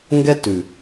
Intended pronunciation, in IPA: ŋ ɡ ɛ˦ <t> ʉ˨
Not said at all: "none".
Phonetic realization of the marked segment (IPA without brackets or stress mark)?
t